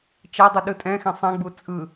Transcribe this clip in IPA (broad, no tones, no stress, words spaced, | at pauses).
t͡ʃɛdˤɯ ɗɯtʼɛ̃xɛ̃ sˤɛ̃ɡ͡bu t͡sʼɯ